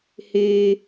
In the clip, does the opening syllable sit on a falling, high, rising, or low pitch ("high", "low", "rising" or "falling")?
high